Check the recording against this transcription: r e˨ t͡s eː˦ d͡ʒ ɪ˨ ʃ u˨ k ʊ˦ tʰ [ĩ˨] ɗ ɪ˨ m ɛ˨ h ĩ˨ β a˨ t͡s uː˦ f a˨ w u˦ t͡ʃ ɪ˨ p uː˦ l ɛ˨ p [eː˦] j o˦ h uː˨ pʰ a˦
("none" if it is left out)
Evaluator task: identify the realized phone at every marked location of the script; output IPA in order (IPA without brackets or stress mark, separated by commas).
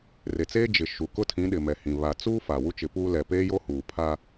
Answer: ĩ˨˦, eː˦